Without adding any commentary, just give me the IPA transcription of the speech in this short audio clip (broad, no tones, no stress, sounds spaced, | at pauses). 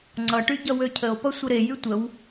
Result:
ŋ͡ǀ ʌ ʈ y ɟ ʌ w ø cʰ ə o̯ p ʌ sʷ ə ɾ e j y tʷ ə w